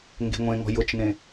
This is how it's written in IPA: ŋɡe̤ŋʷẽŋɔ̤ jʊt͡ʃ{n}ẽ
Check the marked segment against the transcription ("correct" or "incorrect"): correct